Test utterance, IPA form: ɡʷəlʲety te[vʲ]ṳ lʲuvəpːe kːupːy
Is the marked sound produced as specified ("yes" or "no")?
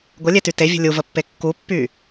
yes